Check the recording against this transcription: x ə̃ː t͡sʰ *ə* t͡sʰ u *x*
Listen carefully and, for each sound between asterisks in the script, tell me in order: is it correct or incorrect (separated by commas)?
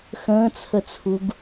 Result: correct, incorrect